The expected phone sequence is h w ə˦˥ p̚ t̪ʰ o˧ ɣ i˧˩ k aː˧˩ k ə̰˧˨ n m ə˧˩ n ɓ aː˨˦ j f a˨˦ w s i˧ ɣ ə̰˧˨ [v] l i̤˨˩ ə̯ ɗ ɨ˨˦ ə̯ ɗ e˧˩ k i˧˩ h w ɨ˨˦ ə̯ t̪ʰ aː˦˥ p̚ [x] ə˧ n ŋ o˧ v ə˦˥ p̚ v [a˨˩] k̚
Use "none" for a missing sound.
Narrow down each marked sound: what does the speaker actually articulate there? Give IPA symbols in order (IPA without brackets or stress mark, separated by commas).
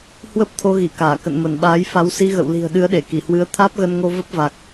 w, ɣ, a˨˩